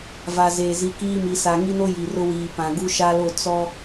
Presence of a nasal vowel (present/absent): present